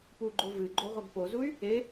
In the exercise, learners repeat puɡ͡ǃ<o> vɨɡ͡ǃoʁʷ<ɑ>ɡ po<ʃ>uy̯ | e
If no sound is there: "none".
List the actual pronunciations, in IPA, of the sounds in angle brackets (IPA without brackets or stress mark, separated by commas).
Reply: o, ɐ, z